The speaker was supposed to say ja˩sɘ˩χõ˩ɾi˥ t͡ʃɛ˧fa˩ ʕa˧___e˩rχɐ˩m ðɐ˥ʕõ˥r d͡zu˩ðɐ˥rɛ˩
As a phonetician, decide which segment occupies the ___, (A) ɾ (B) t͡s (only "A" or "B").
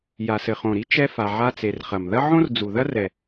B